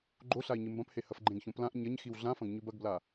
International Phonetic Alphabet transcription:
ɡ͡ǃoɬai̯ ɲɨmbɐ̃phe hɐfɡ͡ǃẽɡçõ plãʔ ɲɐɲxiw ɮãfɐ̃ɡ ɲʉbɐɡbla

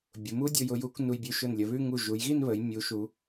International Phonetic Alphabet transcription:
bʲʊ˩˧mu˥dʲʊ˧j ʊ˧ju˩˧k nu˧jbʲʉ˧ ʃʊ˧˩nlʲə˩˧βʉ˥˧ ŋu˧˩ʒu˩˧jɣi˥˧n βə˩˧j mʲu˩˧ʃu˩˧

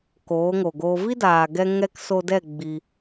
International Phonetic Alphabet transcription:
koː˨˦ ŋo˨ɡoː˧ vi˦daː˨ɡɛ˧ ŋɛ˧k so˧dɛ˦˨ ɡ͡bi˧

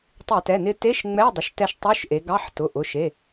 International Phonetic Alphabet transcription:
tˤɛ˧˩˧tɛ˩˧˩ nɪ˧te˧˥˧ʃ ŋ͡mɛ˧˥˧dˤə˩˧˩ʃtɛ˧ʃ tˤo˧˥˧ʃʔe˩˧ɡɑ˧˥˧ħ tʊ˩˧˩ʔʊ˩˧˩ ʃe˩˧˩

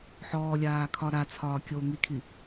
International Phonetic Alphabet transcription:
ħɔːlʲaːkʰɒ ɾat͡sʰɒː kʲo ŋikʰi

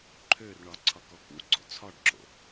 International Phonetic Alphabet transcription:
ǃʰørɳɒ ǀʰɒkɔkṵɡ͡ǀo̰ t͡sʰɒɖǁo̰

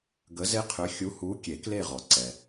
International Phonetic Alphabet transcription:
ɡə˨˥ze˦qʰʏ˨˥ xʲu˨˥hu˨˥ kʲe˨˩˦kle˦˨ʁɔ˩ǀɛ˩

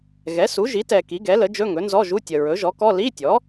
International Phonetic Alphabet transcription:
ɣɛ˩˥su˩˥ ʒi˩˥tɛ˨ ki˩˥ɡɛ˩˥lə˩˥d͡ʒɵ˧˥˧ ŋɵ˩˥nzɔ˧˥˧ʒu˧˥˧tʲə˨ ɹɵ˩˥ʒɔ˩˥kɔ˧˥˧ li˧˥˧tʲɔ˩˥

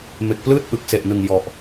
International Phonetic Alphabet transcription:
me˨˩k̚plɯː˥˩t̚ʔɯ˨˩k̚ se˨˩ʔnɯ˨˩ŋ jɔ˨˩ʔ

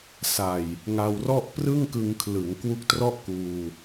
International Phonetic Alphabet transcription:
sa˨˩j | ŋa˧wrɔ˥˩ʔ prɯ˥˩ŋkɯ˧ŋkʰlɯ˩˦ŋkwu˦˥k̚ trɔ˥˩ʔkuː˧

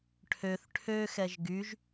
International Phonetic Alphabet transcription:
ʈʰøθ ʈʰøxɛʒ ɡyʒ

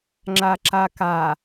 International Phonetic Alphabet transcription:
ŋ͡ǁaǁaka

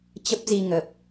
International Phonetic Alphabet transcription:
t͡ɕə˦˥p̚zi˧ ŋə˨˩p̚

